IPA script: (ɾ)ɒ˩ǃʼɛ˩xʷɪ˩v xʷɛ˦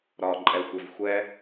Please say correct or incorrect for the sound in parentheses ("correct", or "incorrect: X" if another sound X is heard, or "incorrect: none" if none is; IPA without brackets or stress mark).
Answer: correct